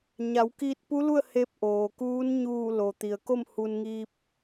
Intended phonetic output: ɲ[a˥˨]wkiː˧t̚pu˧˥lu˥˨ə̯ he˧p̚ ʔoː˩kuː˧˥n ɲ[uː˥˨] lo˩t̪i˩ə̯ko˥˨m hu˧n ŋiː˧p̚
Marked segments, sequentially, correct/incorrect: incorrect: a˩˧, incorrect: uː˧˩

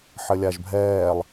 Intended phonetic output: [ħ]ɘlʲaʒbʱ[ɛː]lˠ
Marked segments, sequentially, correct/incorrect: correct, correct

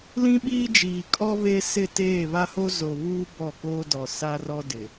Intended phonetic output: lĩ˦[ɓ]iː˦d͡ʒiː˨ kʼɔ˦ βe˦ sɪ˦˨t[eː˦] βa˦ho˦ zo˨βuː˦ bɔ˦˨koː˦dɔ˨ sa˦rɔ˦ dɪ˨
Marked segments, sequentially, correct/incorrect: correct, incorrect: eː˦˨

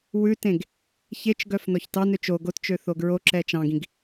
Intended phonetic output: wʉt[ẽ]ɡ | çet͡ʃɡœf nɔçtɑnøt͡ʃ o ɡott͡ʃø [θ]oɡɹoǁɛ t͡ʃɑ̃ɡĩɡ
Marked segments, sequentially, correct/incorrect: correct, correct

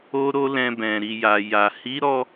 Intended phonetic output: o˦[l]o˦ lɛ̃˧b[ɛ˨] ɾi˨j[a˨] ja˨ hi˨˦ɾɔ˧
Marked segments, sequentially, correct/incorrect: incorrect: ɾ, incorrect: ɛ̃˨, correct

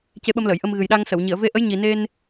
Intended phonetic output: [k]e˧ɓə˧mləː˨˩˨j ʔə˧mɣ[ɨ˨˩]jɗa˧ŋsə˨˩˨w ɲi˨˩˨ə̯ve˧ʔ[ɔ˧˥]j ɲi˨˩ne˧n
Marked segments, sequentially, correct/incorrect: incorrect: c, correct, incorrect: ə˧˥

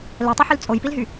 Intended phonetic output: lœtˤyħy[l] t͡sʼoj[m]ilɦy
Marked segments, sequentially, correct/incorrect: correct, incorrect: p

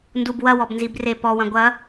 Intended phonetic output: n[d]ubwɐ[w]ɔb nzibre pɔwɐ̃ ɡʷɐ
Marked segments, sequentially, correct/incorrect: correct, correct

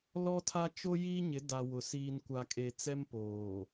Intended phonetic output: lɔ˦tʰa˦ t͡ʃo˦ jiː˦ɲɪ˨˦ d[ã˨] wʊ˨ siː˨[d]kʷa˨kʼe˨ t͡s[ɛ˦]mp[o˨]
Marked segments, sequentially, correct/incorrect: incorrect: a˨, incorrect: n, correct, incorrect: oː˨

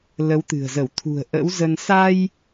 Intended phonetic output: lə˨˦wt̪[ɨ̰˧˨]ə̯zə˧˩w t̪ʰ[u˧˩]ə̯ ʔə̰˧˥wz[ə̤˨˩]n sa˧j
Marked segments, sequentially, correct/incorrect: incorrect: ɨ̤˨˩, incorrect: ṳ˨˩, incorrect: ə˧

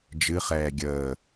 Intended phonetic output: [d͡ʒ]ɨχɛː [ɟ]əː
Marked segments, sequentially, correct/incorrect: correct, incorrect: ɡʲ

